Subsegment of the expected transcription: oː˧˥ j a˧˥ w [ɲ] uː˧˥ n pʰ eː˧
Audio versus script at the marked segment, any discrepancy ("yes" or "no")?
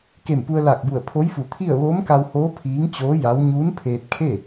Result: no